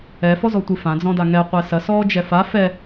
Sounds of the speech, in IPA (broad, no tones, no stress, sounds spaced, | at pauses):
ɛ f ɔ z ɔ tʷ ɨ f ã d͡z ɔ̃ d a ŋ ɛ qʷ ɛ s ɐ s ɔː d͡ʒ ɛ f a f ɛ